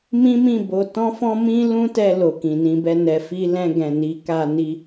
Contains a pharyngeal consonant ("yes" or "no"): no